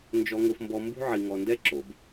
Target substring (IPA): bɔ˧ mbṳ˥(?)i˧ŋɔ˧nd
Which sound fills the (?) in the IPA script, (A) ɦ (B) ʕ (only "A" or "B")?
B